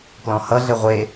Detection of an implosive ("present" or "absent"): absent